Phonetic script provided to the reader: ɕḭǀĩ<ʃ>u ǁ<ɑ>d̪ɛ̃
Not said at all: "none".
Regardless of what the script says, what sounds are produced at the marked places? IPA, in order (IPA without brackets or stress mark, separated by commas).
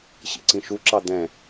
ʃ, ɑ